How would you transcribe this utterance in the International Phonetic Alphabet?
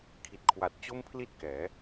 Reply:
kʰ i˨˩ t̚ kʰ w a˨˩ t̚ t͡ɕ o˥˩ m pʰ l i˥˩ t̚ k ɛː˩˦

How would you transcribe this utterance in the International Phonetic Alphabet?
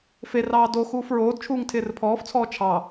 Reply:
f e r ɑː d o x uː f ɹ oː d t͡ʃʰ uː ŋ tʰ ɪː r pʰ ɔː f t͡sʰ ɔː t͡ʃʰ ɑ

